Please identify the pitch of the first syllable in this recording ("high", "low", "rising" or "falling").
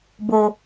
low